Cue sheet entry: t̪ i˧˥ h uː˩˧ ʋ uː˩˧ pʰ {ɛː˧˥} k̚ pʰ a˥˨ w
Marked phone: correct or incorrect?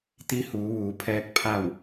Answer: correct